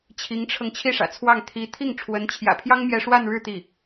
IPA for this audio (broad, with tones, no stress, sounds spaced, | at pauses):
t͡ɕʰ i˧˥ ŋ ʈ͡ʂʰ ɤ˧ ŋ t͡ɕʰ i˥˩ ʂ ä̰˨˩ t͡sʰ w ɑ˥˩ ŋ t̪ʰ i˧˥ t̪ʰ i˥˩ ŋ ʈ͡ʂʰ w ə˧˥ n t͡ɕʰ j ä̰˨˩ pʰ j ɑ˥ ŋ m j ɛ˥ ʂ w a˥˧ n ɻ ɻ̩˥˧ t̪ i˥˩